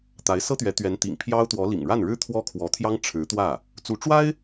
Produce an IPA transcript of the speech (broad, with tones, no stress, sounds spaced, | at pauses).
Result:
t̪ a˧˥ ɪ̯ s ɤ˥ t̪ ɥ ɛ˧˥ t̪ ɥ ɛ˧˥ n t̪ ḭ˨˩ ŋ pʰ j ɑ˥ ʊ̯ t̪ w ɔ˧˥ l ḭ˨˩ ŋ ɻ a˥˩ n ɻ ɻ̩˥ t̪ʰ w ɔ˥ kʰ w ɔ˧˥ t̪ʰ j ɑ˥ ŋ ʈ͡ʂʰ ɻ̩˧˥ t̪ w ä˥˩ | t͡s u˧˥ ʈ͡ʂ w a˥ ɪ̯